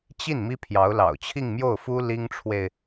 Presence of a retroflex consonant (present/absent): present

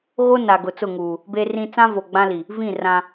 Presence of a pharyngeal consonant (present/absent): absent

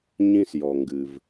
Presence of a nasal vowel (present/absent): present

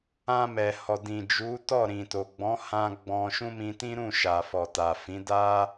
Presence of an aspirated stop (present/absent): absent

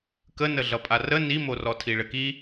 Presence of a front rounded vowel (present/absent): absent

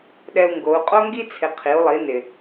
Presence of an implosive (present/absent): present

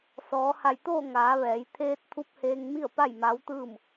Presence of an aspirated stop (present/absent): present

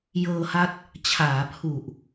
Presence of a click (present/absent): absent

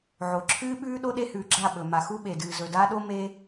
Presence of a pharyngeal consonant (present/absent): present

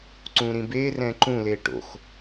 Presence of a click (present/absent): present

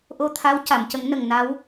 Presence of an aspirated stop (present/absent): present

